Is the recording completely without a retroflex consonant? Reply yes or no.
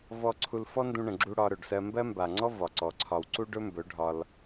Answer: no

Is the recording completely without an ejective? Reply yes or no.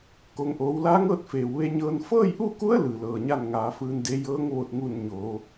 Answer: yes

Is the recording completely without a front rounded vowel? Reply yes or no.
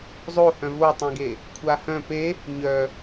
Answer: no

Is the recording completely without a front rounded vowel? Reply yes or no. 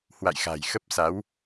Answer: yes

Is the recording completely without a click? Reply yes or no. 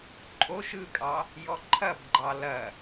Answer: no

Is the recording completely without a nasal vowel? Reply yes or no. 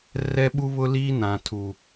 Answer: no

